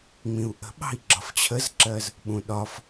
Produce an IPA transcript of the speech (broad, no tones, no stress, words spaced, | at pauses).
ŋ͡mĩu̯ʔə̤ ɓɑ̤i̯ɡ͡ǁɒft͡ɕʰəzǁɜz | ɓũɗɒf